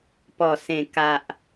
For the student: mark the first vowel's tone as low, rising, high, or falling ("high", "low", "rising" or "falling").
low